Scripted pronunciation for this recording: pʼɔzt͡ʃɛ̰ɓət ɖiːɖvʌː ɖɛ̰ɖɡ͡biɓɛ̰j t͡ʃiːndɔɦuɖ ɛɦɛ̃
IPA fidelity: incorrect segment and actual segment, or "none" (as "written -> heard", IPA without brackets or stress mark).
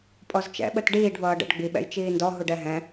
none